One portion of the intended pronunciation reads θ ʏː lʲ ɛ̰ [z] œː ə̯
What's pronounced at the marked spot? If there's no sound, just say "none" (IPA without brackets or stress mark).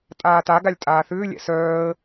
s